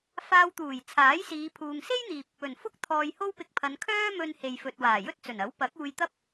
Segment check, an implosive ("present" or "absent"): absent